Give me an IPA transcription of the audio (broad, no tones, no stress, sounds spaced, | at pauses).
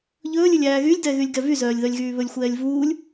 ʎ ɵː lʲ ɵ lʲ æː ɣ y lʲ d ɛ ɣ y lʲ ɡ ɛ v y z œː lʲ ð œ lʲ ɣ yː β ɵ lʲ xʷ ɛː lʲ v uː lʲ